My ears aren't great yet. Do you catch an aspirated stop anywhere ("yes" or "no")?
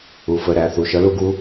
no